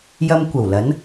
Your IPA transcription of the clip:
j ɐ˧ m kʷ ɐ˨˩ w l ɐ˨˥ n

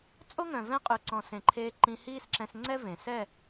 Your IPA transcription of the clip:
t͡sʼ o˦ ŋ œ̃˨ v ɛ̃˦˨ qʼ ʉ˨ ǀ ɔ̃˨ s ẽ˨ ǃʰ eː˧ ǃ ĩ˧ h iː˦ s ǁ ɛ̃˧ s ŋ͡ǀ ɛ˦ v ẽ˨ s ɛ˦˨

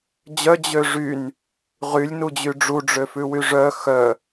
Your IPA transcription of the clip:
d͡ʑ œ d͡ʑ ø ʐ y n | ʁ y lʲ n u d͡ʑ y ɖ͡ʐ u ɖ͡ʐ ø f ʉ w y ʐ œ x œ

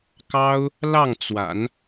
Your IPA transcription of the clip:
k ɑ˥ ʊ̯ | l ɑ˥˩ ŋ t͡s w a̰˨˩˦ n

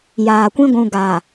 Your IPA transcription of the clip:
j aː˨ kʷ ĩ˦ ɡʷ ũ˨ ɡ aː˨

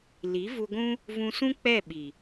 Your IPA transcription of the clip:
l i˨˦ v u˧ ɡʷ ũ˦ | v ũ˧ s ũ˦ k͡p ɛ˦˨ ɓ i˨

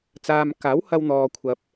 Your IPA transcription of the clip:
t͡s aː˧ m k aː˨˥ w h ɐ˧ w n̪ ɔː˧ kʷʰ ɐ˧ p̚

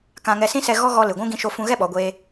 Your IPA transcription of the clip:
k ã˧ ŋ ɛ˧ s ĩ˦ s ɛ˧ ɣ ɔ˦ ɣ ɔ˧ l ɨ˨ ɡʷ ũ˦ ɡ ĩ˧ ʃ o˧ f ũ˧ ɣ ɛ˦ ɓ ɔ˨˦ ɡʷ eː˦

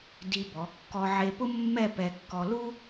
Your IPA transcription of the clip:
d i˧ b ɔ˩˧ kː ɔ˧ ʕ e˧ p ʊ˥ mː ɛ˥˧ p ɛ˧ kː ɔ˧ l u˥

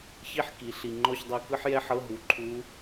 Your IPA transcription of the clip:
ç i˥ ħ k i˩˧ ɬ i˨˩ ŋ͡ǃ ɔ˦˨ ç dˤ ɛ˦˨ k ɯ˥ ħ j ɛ˥ ħ ɤ˧˥˧ ɦ u˩˧ ǃʰ u˧˥

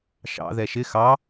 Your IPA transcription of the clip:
ʃ ɑ̰ ð ɛ ʃ ɪ x ɑ

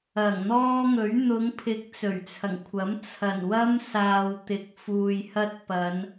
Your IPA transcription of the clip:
ɐ˨˩ ŋ n̪ ɔː˥ ŋ ɵ˨˥ ɥ n̪ ʊ˨˧ ŋ pʰ ɪ˨˥ k̚ t͡s ɵ˨˩ ɥ t͡sʰ ɐ˨˩ ŋ kʷʰ ɐ˨˥ m t͡sʰ ɐ˨˩ n w ɐ˥ m s aː˨ w t̪ ɪ˨ k̚ f uː˨ j h ɐ˧ t̚ p ɐ˨˧ n

